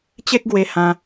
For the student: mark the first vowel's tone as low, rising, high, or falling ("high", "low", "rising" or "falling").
high